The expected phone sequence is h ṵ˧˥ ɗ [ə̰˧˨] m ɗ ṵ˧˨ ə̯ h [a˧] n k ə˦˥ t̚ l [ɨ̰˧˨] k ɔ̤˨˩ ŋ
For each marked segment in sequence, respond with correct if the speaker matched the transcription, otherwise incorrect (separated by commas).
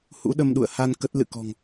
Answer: incorrect, correct, correct